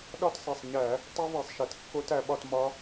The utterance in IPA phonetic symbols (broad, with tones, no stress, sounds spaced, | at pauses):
ɗ ɒ˦˥ t sˤ e˩˧˩ sˤ ɲ æ˧˩˧ | tˤ u˦˥ v e˧˩˧ sˤ ʃ e˩˧ t kː o˦˥ t æ˩˧ ɓ ɒ˥˧ t m ɒ˦˥